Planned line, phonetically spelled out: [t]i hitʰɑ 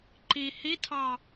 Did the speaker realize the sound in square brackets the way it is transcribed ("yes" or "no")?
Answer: no